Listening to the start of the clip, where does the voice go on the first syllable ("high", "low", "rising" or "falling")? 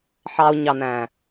low